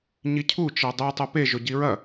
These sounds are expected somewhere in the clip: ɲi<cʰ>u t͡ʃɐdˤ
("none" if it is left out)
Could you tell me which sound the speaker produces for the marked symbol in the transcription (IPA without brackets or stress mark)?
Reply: cʰ